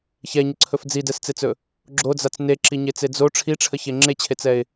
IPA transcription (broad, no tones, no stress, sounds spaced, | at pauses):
ç ɛ ɲ ə ǀʰ ɵ f d͡z i d ɛ s t͡s e t͡s ɵ | ɡ͡ǁ o d͡z a t͡s n e ǁ i ɲ e t͡s e d͡z o ʈ͡ʂʰ i ʈ͡ʂʰ ə ç e ŋ͡ǁ e t͡ɕʰ e t͡s ɛ ɪ̯